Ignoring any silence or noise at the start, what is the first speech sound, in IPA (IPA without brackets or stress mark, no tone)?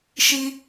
ʃ